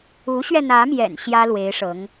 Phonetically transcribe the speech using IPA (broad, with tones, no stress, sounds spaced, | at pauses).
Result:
u˧˥ ɕ ɥ ɛ˧ n̪ ä˧˥ m j ɛ̰˨˩ n ɕ j ä˥ l w e˧˥ ɪ̯ ʂ ɤ˧˥ ŋ